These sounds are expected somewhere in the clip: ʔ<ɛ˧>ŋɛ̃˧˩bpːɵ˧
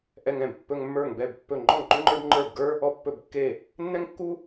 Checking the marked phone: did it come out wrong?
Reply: no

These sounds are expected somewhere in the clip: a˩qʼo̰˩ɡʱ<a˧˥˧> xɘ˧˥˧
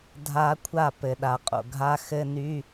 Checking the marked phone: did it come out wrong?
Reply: no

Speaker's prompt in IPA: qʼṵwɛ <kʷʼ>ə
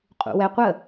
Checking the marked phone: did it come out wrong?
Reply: yes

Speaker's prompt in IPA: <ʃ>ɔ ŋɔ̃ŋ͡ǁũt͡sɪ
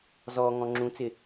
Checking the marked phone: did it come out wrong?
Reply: yes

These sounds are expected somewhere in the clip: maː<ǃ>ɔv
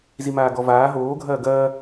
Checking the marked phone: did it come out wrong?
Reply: yes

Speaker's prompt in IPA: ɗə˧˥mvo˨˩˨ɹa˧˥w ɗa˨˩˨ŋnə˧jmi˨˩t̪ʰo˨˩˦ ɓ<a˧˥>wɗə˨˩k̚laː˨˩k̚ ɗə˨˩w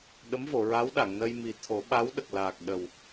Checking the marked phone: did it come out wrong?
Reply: no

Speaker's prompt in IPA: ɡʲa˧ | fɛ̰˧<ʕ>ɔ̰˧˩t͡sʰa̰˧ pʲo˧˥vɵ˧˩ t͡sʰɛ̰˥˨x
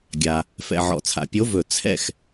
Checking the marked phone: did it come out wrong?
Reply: no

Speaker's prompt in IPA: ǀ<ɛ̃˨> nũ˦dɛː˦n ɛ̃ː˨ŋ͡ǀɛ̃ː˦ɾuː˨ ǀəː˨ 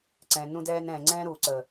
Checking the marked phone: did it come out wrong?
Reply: no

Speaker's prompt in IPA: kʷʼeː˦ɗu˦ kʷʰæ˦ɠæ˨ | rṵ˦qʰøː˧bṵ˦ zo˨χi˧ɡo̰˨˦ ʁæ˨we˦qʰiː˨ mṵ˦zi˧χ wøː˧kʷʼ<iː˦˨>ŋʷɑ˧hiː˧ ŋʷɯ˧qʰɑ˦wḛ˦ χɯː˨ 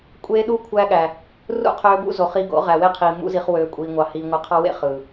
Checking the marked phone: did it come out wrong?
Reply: yes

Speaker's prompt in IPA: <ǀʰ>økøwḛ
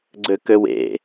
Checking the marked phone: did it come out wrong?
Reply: yes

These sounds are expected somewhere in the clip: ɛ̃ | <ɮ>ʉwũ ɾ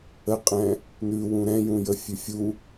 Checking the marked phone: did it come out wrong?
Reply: yes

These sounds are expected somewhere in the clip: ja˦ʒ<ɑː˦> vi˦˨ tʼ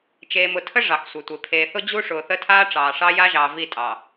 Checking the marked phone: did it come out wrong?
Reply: yes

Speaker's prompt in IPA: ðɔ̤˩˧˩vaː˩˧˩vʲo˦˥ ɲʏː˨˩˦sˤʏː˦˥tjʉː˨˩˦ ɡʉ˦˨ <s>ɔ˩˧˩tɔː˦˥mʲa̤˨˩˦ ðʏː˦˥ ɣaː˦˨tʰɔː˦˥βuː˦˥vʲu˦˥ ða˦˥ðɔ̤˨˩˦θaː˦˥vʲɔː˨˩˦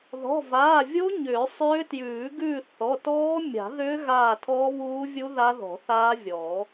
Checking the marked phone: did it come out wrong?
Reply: yes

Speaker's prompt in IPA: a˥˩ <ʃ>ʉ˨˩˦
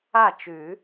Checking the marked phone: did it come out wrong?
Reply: yes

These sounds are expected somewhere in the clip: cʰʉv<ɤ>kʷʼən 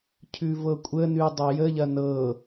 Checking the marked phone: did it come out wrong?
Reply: no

